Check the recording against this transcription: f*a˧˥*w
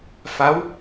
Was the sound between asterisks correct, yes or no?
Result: yes